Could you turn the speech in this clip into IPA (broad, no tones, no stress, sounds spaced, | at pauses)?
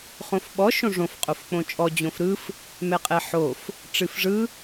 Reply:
χ õ f ɓ ɔ ʃ õ ʐ õ f qʼ o f k͡p õ t͡ʃʼ ɔ d͡ʑ õ f ɾ ɯ f | m ɛ qʼ ɛ ħ o f | ʈ͡ʂ ɨ f ʐ ɯ